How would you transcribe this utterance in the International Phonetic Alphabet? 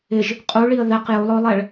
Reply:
ɪ ʒ | qʼ u ɭ i ə̯ ð ɛ q j o lˠ ɔ lˠ ɛ ɭ

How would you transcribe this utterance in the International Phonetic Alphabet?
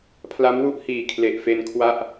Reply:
pʰ l a˦˥ m w u˥˩ ʔ h iː˨˩ kʰ l e˨˩ ʔ f e˧ n kʰ w a˥˩ ʔ

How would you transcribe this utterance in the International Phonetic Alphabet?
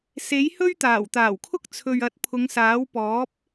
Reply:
s e˨˥ j h ɵ˥ ɥ t̪ aː˨˩ w t̪ aː˨˩ w kʰ ʊ˥ k̚ t͡sʰ ɵ˨ ɥ ɐ˨˥ t̚ pʰ ʊ˨˧ ŋ s aː˨˥ w p ɔː˨˥ p̚

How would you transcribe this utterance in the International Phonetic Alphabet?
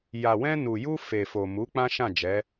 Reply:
j a˨ w ɛ̃˧ n u˨ j u˧ f e˨ f o˨ m u˨˦ k͡p ã˦ ʃ ã˦˨ d͡ʒ ɛ˨˦

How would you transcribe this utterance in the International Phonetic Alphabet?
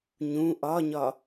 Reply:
ɲ ũ ʔ ɒ ɲ ɒ

